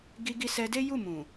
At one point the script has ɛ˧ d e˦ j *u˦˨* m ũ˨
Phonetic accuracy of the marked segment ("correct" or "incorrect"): correct